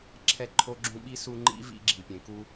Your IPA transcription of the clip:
ǁʰ ɛ˦ ǃʰ o˦ ɡ͡ǁ ũ˦ ɓ i˥ s u˦ ŋ͡ǃ ḭ˥ v ḭ˦ ɡ͡ǁ i˩ pʲ ẽ˩ k u˦

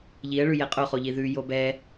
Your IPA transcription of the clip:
ʎ i ə̯ ɭ ʉ j ɛ qʼ o χ o ʎ i ð ʉ j o b ɛ

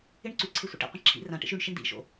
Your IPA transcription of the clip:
ɪ ɳ ǀ ʉ ǀʰ e sʷ ḛ ʈ ḛ qʷ ẽ ǁʰ ḭ r ã ʈ ḛ ʃ ʉ ɳ ʃ ɪ ɳ d̪ ḭ ʃ o̰

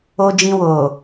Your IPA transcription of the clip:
o˧ d͡ʒ ĩ˧ w o˨

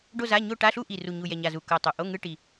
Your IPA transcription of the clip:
ɖ o˥˧ z a˧˥˧ ɲ o˥˧ ʈ a˧˥˧ ɬ u˥˧ ʔ i˨˩ r u˨˩ ɲ u˨˩ j ɛ˨˩ ɲ a˨˩ z u˨˩ k ɤ˨˩ tˤ o˨˩ ʔ o˧˥˧ ŋ ɯ˧˥˧ ʈ i˨˩

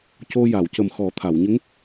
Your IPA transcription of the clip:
c o˧ j a˨˩˨ w c ə˨˩ m x ɔ˨˩˦ t̪ʰ a˨˩˨ w ɲ ə˧˥ ŋ

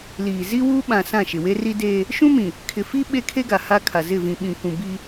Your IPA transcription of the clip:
l iː˨ z i˦ w uː˦ ɓ ã˨ s ã˦˨ ʃ ɪ˨ w e˦ r i˦ d eː˦ | ʃ ũ˦ m ĩ˨ | kʰ ɪ˨ f i˦ ɓ e˦ kʰ e˦ ɡ a˨ h a˦ kʰ a˨ z ɪ˦˨ v ĩ˨ ɓ ĩ˨ kʷ ũ˨ b i˦

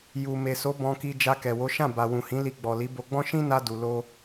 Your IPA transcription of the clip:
j u˨ m e˨ s o˨˦ b ɔ̃˧ k i˧ d͡ʒ a˧ k ɛ˨ w o˨˦ ʃ ã˦˨ b a˨ w ũ˨ h ĩ˨˦ l i˧ ɡ͡b ɔ˨ l i˨˦ b o˧ ɡ͡b ɔ̃˦ ʃ ĩ˦ n a˧ d u˨ l o˧

